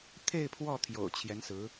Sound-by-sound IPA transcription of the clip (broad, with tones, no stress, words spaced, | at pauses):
t̪ʰe˥˧ɪ̯ pʰwɔ˥˩t̪ʰjo̰˨˩ʊ̯ t͡ɕʰjɛ˧˥nsɹ̩˧˥